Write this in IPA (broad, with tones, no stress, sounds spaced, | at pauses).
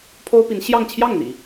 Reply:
pʰ o˥ ʊ̯ p i˧˥ n ɕ j ɑ˥˧ ŋ t͡ɕʰ j ɑ˥˩ ŋ n̪ ḭ˨˩˦